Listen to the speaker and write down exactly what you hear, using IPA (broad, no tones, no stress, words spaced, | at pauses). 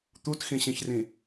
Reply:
t̪utxĩɕĩçrĩ